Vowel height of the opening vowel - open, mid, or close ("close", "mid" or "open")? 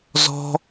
mid